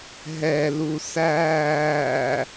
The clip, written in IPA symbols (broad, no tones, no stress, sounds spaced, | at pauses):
ɦ ɛ l u s æː